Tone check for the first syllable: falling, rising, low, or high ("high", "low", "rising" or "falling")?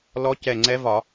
rising